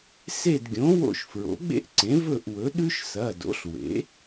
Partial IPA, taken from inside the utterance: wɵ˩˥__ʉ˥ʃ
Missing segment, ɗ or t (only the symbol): ɗ